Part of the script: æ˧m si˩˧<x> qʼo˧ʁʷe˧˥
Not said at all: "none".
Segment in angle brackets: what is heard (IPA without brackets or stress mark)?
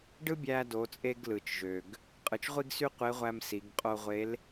ɡ